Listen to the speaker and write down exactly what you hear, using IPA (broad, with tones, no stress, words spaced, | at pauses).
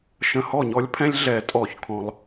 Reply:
ʃə̃˧˩hɔ˥˩ɲɔ˦lʲpʰɛ̃˦lʲ ɮɛ˨˩˦tʼɔ˨˩˦çkʰɔ̃˩lˠ